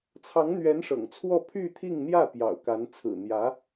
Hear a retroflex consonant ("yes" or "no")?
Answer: yes